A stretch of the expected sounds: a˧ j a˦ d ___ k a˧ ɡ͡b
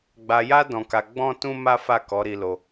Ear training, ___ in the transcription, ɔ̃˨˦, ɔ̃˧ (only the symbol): ɔ̃˧